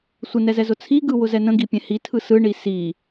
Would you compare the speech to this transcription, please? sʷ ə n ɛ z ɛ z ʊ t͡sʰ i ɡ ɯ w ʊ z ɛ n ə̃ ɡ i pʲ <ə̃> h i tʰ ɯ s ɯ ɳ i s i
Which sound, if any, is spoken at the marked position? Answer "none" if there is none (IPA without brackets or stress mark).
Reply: ɛ̃